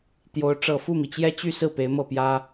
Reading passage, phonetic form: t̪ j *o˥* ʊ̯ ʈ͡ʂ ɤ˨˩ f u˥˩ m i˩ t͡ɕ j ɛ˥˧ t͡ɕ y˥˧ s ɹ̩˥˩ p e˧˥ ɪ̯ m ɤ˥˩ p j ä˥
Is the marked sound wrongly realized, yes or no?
yes